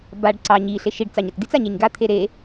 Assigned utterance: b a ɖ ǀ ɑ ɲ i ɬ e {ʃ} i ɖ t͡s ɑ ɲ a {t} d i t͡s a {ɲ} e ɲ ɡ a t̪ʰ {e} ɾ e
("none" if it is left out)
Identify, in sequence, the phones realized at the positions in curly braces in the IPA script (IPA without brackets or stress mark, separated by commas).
ʃ, t, ɲ, e